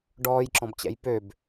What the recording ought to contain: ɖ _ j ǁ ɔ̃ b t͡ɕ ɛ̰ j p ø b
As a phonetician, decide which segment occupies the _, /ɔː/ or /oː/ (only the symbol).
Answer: ɔː